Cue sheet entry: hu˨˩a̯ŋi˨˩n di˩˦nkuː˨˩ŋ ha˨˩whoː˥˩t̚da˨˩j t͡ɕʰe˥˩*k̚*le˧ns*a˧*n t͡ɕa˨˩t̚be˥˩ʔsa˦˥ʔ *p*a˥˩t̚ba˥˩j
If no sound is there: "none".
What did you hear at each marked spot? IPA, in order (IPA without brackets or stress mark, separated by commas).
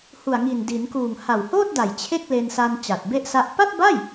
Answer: k̚, a˧, p